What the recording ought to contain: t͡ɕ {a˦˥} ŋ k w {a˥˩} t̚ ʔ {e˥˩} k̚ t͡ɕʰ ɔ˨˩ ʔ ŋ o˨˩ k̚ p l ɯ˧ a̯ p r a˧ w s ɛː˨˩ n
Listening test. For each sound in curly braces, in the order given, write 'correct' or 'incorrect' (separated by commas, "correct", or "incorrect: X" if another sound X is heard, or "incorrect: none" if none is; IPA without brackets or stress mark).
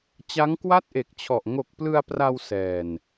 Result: correct, correct, incorrect: e˨˩